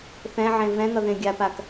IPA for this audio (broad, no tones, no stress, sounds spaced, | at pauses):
θ ɛ̃ ʕ ẽ v ɛ̃ ŋ ʌ ð ẽ ɡʲ a p a k